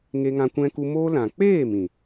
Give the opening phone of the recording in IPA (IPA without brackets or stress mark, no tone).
ŋ